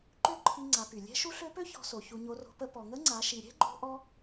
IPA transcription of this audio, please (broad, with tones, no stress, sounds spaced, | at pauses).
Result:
ǃ ø˥ ǃʰ i˧ ŋ͡ǀ a˩˧ p y˩ lʲ ɛ̤˧˥ ʃ u˧˥ ɬ ø˧˥ p ø˥ ç ɔ̤˧ s o˩ ç u˧ ɲ o˧˥ r o̤˧˥ p ə˧˥ p ɔ˩ ŋ ə˧˥ ŋ͡ǀ a˩˧ ʃ i˩ ɾʲ ɛ̤˥ ɡ͡ǃ o̤˥ ʔ ɔ˥